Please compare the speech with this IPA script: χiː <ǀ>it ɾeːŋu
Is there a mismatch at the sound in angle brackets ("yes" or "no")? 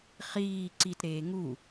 no